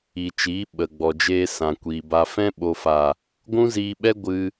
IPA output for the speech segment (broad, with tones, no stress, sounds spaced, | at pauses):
i˨ t͡ʃ iː˨˦ ɓ ə˨ ɡ͡b ɔ˨ d͡ʒ eː˧ s ã˨ kʷ iː˨ b a˧ f ɛ̃˦ ɓ o˨ f a˨ | ɡʷ ũ˦ z iː˧ ɓ ɛ˦ ɡʷ ɨ˧